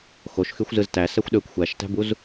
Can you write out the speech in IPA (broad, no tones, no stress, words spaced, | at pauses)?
xoʃxyxʷ zɯztæ sæxʷɗøkʷ xʷæʃtæ̤buz